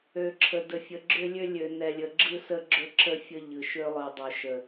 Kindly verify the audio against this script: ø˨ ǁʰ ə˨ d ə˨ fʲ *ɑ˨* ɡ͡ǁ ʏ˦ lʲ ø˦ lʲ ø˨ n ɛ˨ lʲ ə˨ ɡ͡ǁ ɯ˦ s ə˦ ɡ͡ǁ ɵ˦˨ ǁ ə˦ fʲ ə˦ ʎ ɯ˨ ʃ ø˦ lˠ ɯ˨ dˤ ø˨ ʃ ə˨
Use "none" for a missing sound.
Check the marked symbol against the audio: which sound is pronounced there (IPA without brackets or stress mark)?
ə˨